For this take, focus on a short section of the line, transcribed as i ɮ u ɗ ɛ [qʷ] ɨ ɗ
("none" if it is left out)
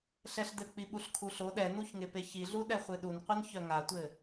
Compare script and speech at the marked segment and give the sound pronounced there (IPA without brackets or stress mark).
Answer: χʷ